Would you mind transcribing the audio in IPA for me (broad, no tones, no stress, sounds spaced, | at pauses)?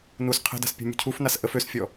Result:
n u s qʰ ə̤ d a̤ s pʲ ṳ mʲ ṳ cʰ u f n a s ʔ ə f ø s fʲ ɔ